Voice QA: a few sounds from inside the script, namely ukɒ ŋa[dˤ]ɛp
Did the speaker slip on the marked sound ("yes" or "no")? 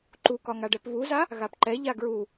yes